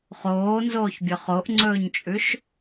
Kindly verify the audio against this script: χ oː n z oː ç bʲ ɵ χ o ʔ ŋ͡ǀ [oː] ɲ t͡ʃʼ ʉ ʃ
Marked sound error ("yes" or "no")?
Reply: yes